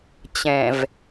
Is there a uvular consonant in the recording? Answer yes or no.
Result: no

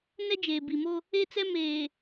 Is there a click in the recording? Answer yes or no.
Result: no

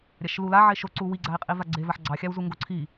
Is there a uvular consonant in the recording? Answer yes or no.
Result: yes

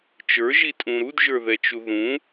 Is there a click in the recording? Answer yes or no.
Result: no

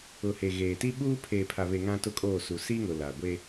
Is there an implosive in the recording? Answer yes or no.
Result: yes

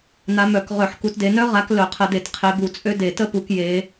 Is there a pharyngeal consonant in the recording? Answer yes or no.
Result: yes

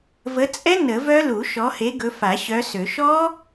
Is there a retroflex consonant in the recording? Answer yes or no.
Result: no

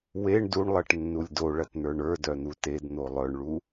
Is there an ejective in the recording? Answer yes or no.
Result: no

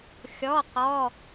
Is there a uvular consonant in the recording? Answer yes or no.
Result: yes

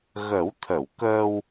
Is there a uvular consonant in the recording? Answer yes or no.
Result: no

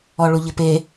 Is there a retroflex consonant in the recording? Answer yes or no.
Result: yes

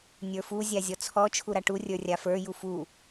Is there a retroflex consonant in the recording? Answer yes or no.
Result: yes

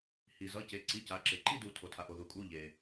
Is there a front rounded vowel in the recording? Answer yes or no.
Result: no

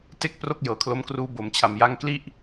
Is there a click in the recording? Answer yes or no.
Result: no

